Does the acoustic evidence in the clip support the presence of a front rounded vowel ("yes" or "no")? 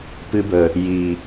no